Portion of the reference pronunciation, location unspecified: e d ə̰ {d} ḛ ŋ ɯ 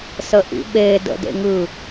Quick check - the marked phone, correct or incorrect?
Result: correct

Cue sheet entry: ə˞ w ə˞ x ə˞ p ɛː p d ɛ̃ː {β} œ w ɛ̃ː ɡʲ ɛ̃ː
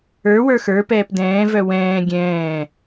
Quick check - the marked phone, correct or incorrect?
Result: incorrect: v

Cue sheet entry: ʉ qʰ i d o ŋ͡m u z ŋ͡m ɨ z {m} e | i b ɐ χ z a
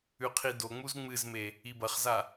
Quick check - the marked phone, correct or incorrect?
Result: correct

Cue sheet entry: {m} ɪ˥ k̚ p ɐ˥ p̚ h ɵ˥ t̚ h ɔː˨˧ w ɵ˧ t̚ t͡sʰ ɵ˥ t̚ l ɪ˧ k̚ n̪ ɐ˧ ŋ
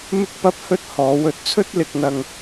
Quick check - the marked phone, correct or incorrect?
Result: correct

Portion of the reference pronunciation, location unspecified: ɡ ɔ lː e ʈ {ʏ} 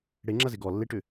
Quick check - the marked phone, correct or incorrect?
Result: correct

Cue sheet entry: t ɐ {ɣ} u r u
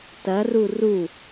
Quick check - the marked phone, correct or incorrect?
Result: incorrect: r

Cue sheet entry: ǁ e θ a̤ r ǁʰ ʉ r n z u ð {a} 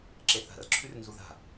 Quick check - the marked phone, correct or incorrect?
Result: incorrect: a̤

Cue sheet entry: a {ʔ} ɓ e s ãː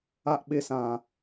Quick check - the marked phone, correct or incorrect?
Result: correct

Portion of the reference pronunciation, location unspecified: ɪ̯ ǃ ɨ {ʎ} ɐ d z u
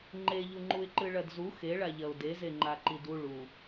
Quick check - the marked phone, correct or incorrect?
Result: incorrect: ɭ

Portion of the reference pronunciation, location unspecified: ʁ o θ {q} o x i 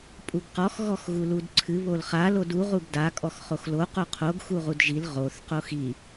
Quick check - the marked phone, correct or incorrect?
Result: correct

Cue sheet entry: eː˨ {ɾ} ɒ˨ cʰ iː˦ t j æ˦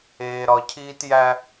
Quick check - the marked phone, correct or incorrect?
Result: correct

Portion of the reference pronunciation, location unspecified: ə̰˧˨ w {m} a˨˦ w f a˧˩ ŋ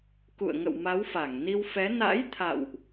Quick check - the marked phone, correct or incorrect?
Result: correct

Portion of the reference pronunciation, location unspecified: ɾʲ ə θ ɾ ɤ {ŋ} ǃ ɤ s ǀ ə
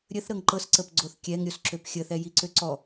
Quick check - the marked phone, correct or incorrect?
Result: correct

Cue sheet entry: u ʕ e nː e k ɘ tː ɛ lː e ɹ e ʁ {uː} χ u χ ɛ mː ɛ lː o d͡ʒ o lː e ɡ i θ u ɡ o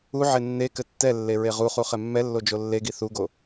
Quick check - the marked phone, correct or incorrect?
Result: incorrect: u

